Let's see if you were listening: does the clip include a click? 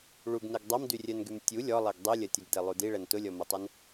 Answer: no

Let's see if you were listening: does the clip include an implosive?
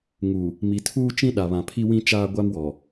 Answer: yes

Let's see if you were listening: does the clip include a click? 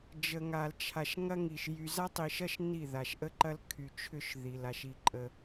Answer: yes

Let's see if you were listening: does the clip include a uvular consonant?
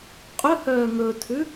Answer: yes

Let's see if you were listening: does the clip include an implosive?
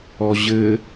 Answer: no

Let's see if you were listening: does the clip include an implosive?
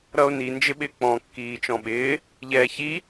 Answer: yes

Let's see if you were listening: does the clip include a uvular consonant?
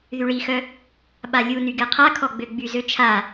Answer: yes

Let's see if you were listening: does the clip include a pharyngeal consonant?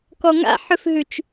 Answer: yes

